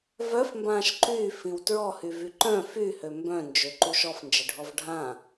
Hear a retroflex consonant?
yes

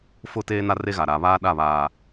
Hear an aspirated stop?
no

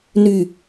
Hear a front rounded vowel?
yes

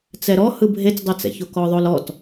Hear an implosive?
no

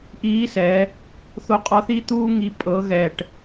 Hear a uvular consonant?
yes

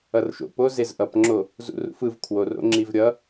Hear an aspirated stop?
yes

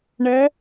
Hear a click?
no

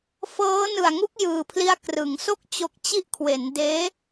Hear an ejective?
no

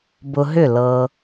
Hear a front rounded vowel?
yes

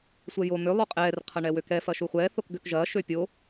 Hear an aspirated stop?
yes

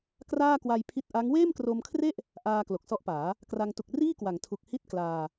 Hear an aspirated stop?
yes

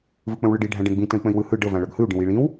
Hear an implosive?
no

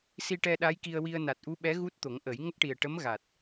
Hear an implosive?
yes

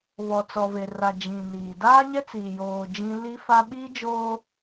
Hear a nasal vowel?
yes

